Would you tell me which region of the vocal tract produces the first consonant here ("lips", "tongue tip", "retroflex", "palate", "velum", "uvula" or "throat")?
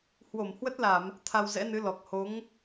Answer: throat